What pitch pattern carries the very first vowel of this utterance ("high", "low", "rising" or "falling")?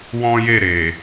high